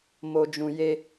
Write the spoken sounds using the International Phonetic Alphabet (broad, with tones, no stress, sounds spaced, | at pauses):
m o˧ d͡ʒ ũ˧ j e˧